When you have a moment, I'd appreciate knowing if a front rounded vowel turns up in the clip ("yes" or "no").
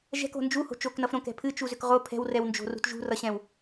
yes